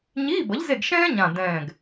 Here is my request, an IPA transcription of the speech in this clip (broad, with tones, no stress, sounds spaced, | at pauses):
ɲ iː˧˥˧ b ʌ˨˥ ʎ z e˦˨ ɡ ʃ ɛ̃ː˥ ɲ ã˨˩ d ɛ̃ː˨˩ ɡ